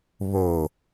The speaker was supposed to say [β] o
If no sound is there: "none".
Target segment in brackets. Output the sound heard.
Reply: β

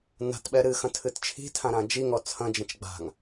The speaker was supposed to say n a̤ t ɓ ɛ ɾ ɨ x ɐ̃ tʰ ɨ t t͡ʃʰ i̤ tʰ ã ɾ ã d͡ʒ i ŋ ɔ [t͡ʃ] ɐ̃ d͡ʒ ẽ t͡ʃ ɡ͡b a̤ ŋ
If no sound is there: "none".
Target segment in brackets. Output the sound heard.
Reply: t͡sʰ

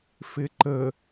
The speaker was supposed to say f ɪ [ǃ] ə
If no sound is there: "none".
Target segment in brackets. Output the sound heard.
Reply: ǃ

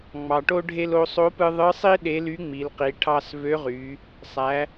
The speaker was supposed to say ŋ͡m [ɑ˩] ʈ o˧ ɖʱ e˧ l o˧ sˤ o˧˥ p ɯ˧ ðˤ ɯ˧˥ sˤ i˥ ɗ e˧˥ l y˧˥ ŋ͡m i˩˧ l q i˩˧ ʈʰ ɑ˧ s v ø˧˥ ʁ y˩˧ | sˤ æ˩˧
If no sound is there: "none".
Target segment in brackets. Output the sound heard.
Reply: ɑ˩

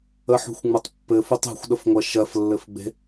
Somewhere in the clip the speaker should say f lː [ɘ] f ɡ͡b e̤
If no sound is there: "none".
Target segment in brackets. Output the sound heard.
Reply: ɘ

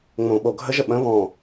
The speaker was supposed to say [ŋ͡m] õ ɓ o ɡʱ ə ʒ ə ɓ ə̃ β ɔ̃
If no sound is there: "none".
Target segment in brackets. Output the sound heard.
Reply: ŋ͡m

